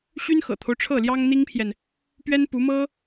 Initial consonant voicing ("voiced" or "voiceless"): voiceless